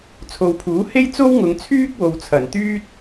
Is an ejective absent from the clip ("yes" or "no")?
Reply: yes